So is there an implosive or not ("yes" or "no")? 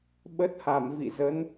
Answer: yes